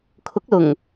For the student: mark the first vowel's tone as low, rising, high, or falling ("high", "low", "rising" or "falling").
rising